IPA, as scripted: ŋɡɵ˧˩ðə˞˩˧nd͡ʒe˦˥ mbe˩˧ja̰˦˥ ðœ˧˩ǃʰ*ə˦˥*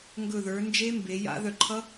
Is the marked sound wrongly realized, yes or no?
yes